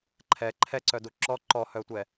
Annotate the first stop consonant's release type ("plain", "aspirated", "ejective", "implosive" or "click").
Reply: click